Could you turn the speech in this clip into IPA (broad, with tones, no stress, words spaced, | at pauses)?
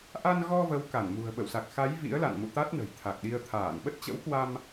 ʔa˧nɣɔ˧ və˨˦w ka˧˩nmṳ˨˩ə̯ɓə̰˧˨w sa˨˩k̚xa˨˦j vḭ˧˥ə̯ la̰˧˨nmṵ˧˨ t̪a˦˥t̚nə̤˨˩j t̪ʰa˨˩k̚ɗi˧ə̯ t̪ʰaː˧˩nɓə˦˥t̚t͡ɕə̰˧˥wkwa˧m